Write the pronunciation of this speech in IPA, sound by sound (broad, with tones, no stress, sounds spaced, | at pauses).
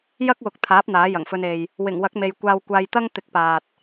j ɐ˥ k̚ w ʊ˨˥ k̚ t̪ʰ aː˨˥ p̚ n̪ aː˨˥ j ɐ˨˩ ŋ f ɵ˧ n e˨ j | w ɪ˨˩ ŋ w ɐ˨˥ k̚ m e˨ j kʷ aː˧ w kʷ aː˧ j t̪ ɐ˥ ŋ t̪ ɪ˨˥ k̚ p aː˨ t̚